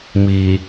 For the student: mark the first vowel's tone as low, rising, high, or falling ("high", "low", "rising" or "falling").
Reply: low